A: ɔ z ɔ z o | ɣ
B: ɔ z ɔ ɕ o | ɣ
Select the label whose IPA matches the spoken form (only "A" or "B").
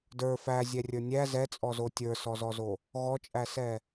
A